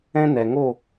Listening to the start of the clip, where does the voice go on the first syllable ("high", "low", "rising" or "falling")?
high